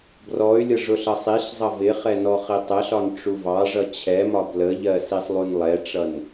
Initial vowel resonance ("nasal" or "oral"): oral